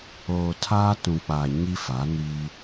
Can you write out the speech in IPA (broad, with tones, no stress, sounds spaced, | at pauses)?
oː˨ tʰ aː˦ t ũ˨ k͡p a˨ ɲ i˦ f a˨˦ n i˦